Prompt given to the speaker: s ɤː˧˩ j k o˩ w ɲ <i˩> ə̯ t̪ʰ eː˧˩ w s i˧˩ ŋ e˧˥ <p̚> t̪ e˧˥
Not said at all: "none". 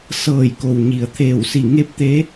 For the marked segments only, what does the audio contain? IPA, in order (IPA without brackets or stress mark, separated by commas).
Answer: i˩, p̚